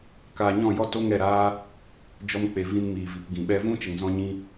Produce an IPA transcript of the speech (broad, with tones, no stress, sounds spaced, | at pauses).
k aː˧ ɲ ɔ̃˦˨ j ɔ˦ t o˦ ŋ ɛ˦˨ ɾ aː˦ | d͡ʒ ɔ˧ m k͡p e˨ v ĩ˧ n m iː˨ v i˨ p ɡ ĩ˨ ɓ ɛ˧ v ũ˦ t͡ʃ ə˨ ŋ z ɔ̃˧ ɲ ĩ˧